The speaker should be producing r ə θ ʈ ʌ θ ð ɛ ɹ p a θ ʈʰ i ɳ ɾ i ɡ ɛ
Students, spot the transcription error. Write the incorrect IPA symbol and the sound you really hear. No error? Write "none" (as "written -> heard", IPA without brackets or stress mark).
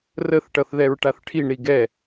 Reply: p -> ʈ